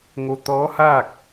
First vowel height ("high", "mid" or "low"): mid